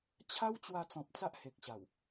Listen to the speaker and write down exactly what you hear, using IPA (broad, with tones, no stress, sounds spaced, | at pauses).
t͡ɕʰ a˦ w t͡ɕ w a˧ t͡s ɔ̃˨ p̚ t͡s a˦ ʔ h e˨ k̚ ɕ a˨˩ w